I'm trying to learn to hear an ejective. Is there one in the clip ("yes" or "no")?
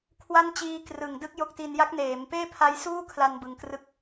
no